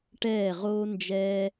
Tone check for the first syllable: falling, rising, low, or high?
falling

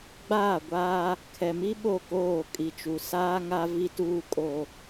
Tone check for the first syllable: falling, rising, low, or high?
falling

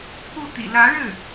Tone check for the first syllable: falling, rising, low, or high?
falling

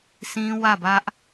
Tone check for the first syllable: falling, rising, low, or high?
high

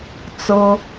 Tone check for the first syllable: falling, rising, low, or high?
high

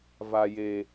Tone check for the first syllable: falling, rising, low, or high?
low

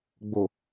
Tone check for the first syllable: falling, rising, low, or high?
low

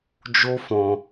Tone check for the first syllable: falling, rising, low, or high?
high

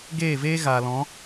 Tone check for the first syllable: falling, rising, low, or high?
falling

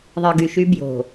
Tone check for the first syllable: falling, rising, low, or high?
low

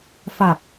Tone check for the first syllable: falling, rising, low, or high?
low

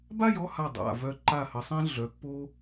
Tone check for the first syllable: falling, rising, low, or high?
falling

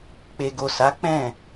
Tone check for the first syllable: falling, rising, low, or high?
low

